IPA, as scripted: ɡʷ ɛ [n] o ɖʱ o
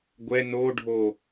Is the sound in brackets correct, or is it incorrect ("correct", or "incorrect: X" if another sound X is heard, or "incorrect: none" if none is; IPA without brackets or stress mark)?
correct